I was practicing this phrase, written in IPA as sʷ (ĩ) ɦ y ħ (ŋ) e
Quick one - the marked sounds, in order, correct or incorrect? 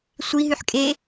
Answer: incorrect: i, incorrect: kʼ

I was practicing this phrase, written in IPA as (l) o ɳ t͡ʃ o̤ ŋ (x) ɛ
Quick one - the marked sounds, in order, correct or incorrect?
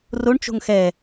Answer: incorrect: r, correct

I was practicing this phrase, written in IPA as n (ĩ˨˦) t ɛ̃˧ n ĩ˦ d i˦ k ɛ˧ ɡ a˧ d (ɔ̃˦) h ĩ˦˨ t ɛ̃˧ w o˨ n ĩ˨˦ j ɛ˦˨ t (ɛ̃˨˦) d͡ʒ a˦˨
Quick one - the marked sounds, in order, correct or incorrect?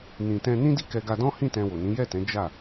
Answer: incorrect: ĩ˨, correct, correct

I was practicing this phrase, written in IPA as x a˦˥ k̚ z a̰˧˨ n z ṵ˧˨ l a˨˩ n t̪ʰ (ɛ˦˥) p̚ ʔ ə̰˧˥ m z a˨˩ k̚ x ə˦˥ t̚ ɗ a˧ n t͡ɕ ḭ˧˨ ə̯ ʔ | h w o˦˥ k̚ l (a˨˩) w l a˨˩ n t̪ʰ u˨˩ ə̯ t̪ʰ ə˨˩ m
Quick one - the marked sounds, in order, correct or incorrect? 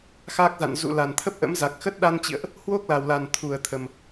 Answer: incorrect: ə˦˥, correct

